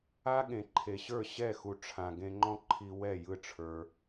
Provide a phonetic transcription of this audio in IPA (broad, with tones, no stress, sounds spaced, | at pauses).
a˦ ɠ ẽ˨ ǃʰ e˨ ɕ ə˞˦˨ ɕ ɛ˦˨ x u˨ ʈ͡ʂʰ ã˨ ɡ ẽ˧ ŋ͡ǃ ɔ̃˦ ǃʰ i˧ w ɛ˦˨ j ɯ˦ ʈ͡ʂʰ ə˞˧